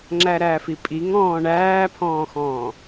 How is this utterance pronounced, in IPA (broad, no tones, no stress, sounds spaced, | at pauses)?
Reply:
ŋ͡ǁ æ ɾ æː f i pʼ i ŋ ɔ̃ː ɳ æː pʰ ɔ̃ː x ɔ̃ː